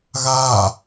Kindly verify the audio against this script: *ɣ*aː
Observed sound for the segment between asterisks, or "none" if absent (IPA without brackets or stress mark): ɣ